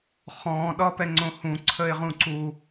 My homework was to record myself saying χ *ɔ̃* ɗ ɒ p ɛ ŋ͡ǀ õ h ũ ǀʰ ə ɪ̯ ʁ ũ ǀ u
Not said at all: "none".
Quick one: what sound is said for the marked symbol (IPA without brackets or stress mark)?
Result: ɔ̃